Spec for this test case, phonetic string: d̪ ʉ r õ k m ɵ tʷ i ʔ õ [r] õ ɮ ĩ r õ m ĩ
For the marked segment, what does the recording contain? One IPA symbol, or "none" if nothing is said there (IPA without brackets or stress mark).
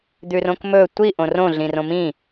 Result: r